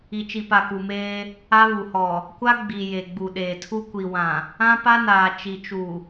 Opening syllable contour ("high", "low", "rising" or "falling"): low